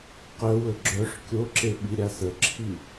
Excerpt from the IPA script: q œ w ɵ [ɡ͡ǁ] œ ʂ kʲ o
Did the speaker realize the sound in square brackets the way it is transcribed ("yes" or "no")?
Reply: yes